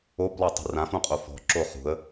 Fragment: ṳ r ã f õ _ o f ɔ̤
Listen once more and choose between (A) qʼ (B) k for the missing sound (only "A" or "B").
A